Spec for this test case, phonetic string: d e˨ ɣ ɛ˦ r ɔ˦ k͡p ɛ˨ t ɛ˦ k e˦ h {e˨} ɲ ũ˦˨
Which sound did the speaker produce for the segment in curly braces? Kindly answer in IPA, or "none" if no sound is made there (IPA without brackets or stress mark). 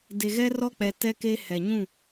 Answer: ɛ˨